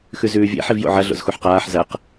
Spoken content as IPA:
x ʉ z ʉː vʲ ḛ ħ i v j o̰ ʕ ɐ ɮ o̰ z x u ħ q aː ħ z ɐ q

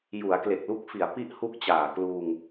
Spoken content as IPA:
j u˩˦ a̯ k l e˨˩ k̚ l u˥˩ k̚ f i˩˦ a̯ p i˥˩ ʔ h u˥˩ k̚ t͡ɕ aː˨˩ k l uː˧ ŋ

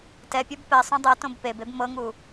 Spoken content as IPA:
t ɛ pʲ ɔ b p ɛ sˤ õ dˤ ɤ t õ b p e b e b m ɤ ŋ u

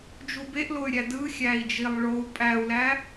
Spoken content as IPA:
d͡ʒ u b e ʔ l o y̯ ɾʲ æ d ɯ xʲ æ i̯ d͡ʒ i lˠ ɭ o u̯ pʼ æ u̯ l æ

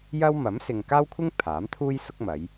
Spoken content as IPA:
j ɐ˥ w m ɐ˨˥ m s ɪ˨ ŋ k aː˥ w kʷʰ ɪ˥ ŋ pʰ aː˨˥ m t̪ʰ uː˥ j s ʊ˥ k̚ m ɐ˨˧ j

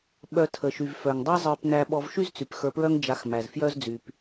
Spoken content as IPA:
ɓ œ˧ tʰ ə˩ ʃ y˩ v f œ˩ ŋ dˤ ɛ˥ zˤ ə˞˧ p n æ˧ ɓ ɔ˧ v ʃ y˥ z t͡s y˩ p x ə˞˧ p ɹ œ˥ ŋ d͡ʒ a˧ x m æ˩ z f j œ˥ z d͡z y˩ p

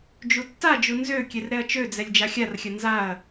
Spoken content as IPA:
d͡ʒ u tː a d͡ʒ u n z ø kʲ ɛ r ɾ ɛ ɐ̯ t͡ʃ ø d͡z ɛ lʲ d͡ʒ a xʲ a r xʲ ɐ n z a ɐ̯

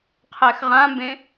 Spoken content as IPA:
qʰ ɛ x ʁ ã m b ẽ

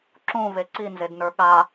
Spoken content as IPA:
ǁ ũ v e ǀ i n z e d n ə˞ ɠ a

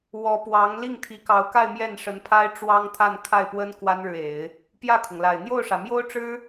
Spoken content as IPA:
w ɔ˧˥ p w ɑ˧˥ ŋ l i˥˩ ŋ t̪ʰ i˧˥ k ɑ˧˥ ʊ̯ k a˥˧ ɪ̯ m j ɛ˥˩ n ʂ ə˧˥ n pʰ a˥ ɪ̯ ʈ͡ʂ w ɑ˥ ŋ t̪ʰ a˥˧ n kʰ a˥˩ ɪ̯ p w ə˥ n k w a˥ n ɻ ɻ̩˨ e˨˩˦ ɪ̯ | p j ä˥˩ kʰ ʊ˩ ŋ l a˨˩ ɪ̯ n̪ j o˥˩ ʊ̯ ʂ ä˩ m j o˥ ʊ̯ ʈ͡ʂ ɻ̩˥

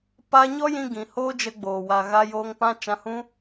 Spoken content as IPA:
p a˧ ɲ ɔ˦ j ĩ˧ ɡ ĩ˨ h oː˦ d͡ʒ ə˧ ɡ͡b oː˨ w a˨ ɣ a˧ j oː˧ ŋ p ã˦ t͡ʃ ã˧ h ũ˦

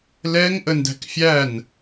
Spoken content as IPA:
l ɛ ŋ ʔ ə n d æ̤ k fʲ æ n

